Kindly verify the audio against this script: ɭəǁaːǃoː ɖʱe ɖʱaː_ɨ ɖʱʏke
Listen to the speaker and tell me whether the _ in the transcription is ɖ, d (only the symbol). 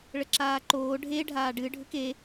ɖ